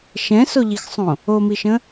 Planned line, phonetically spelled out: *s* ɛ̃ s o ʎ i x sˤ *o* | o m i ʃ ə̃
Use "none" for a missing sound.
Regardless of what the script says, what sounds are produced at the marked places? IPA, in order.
ʃ, õ

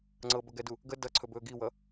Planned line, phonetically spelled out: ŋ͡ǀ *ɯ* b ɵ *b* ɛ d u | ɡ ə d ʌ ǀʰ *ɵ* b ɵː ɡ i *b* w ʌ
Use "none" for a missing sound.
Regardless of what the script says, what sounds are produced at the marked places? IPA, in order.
ɤ, ɡ, ɵ, none

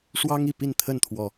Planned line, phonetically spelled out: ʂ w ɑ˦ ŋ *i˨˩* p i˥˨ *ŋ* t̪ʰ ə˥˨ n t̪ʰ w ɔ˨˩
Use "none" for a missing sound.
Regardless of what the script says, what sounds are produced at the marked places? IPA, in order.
i˨˩, n

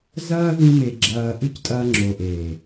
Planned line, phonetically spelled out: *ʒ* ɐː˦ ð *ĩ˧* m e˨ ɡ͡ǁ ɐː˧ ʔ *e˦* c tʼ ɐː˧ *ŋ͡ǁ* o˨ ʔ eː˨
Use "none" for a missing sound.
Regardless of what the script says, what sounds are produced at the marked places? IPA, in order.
z, ĩ˧, ɨ˦, ŋ͡ǁ

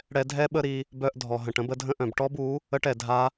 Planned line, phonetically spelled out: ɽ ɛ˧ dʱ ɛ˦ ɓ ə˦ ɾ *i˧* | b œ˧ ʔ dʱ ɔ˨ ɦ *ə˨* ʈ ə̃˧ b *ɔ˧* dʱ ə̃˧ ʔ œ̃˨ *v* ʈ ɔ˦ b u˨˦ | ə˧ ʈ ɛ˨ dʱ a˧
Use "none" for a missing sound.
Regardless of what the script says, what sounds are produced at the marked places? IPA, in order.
i˧, ə̃˨, ə˧, b

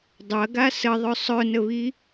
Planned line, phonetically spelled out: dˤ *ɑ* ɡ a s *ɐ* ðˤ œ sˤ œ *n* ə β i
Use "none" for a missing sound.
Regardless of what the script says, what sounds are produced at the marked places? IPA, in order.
ɐ, ə, n

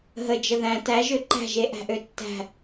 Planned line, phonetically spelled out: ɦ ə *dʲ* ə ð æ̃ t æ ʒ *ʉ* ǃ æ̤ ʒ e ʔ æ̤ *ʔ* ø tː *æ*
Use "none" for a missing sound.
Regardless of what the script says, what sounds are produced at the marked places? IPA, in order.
d͡ʒ, ø, ʔ, æ̤

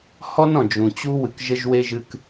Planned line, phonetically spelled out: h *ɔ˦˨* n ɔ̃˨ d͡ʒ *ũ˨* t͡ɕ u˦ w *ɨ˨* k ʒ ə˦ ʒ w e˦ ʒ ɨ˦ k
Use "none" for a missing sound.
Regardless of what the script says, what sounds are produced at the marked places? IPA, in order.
ɔ˦, ũ˨, ɨ˨

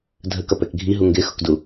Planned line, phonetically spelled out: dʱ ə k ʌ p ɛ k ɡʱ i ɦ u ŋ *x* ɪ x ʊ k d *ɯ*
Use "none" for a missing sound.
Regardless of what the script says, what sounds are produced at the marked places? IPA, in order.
ɡ, u

